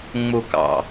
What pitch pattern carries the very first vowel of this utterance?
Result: low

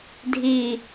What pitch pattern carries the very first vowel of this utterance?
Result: low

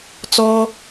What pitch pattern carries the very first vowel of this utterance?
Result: high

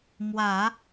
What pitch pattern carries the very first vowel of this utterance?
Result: low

